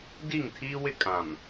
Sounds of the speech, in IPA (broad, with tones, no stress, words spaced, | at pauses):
di˦˨ŋtʰiː˦wɪ˦ kʼã˨m